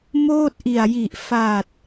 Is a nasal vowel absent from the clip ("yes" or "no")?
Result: yes